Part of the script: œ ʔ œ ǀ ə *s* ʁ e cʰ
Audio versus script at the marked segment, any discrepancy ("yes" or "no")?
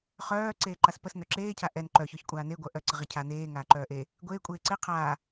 yes